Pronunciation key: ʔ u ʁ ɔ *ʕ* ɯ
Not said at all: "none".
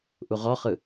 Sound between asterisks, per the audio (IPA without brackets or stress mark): χ